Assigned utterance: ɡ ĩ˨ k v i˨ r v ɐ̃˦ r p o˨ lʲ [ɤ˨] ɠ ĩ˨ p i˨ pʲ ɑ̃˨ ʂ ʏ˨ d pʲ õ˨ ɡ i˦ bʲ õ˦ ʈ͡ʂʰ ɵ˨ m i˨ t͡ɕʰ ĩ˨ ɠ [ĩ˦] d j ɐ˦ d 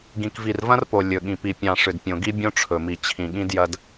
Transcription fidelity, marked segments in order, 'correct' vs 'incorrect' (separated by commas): incorrect, correct